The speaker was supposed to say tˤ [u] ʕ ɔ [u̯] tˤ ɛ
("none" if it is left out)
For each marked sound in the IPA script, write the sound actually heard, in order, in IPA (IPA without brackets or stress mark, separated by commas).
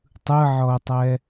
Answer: ɯ, u̯